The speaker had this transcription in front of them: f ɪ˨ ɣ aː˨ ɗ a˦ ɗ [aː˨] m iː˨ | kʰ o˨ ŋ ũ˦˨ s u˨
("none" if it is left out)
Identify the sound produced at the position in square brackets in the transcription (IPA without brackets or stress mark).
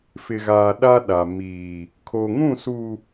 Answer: a˨